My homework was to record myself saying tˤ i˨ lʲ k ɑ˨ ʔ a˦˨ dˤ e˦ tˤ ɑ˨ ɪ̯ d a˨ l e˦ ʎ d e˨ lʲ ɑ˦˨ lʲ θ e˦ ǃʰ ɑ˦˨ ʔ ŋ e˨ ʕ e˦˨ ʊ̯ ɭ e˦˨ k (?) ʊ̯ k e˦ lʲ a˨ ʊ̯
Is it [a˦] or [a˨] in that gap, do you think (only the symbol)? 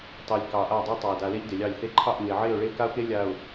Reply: a˦